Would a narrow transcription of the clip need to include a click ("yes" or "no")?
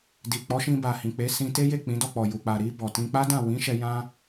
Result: no